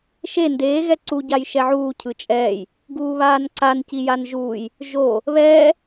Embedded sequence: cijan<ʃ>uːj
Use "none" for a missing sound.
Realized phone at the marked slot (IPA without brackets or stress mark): ʒ